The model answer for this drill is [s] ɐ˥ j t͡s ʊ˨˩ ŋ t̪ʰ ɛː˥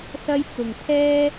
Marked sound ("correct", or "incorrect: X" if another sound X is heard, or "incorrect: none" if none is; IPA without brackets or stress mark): correct